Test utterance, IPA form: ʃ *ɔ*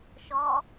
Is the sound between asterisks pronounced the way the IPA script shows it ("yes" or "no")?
yes